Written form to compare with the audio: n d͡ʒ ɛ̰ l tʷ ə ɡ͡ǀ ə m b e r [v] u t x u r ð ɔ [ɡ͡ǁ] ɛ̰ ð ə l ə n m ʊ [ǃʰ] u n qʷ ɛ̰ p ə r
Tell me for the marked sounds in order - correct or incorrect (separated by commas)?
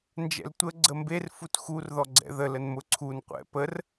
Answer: incorrect, incorrect, incorrect